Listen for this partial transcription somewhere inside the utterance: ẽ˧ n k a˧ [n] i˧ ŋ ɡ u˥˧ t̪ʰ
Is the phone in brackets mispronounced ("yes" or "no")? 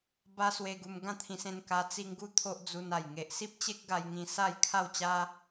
yes